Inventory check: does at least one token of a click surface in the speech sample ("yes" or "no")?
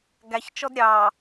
no